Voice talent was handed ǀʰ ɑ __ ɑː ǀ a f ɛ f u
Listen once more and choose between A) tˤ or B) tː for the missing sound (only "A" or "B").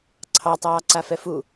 A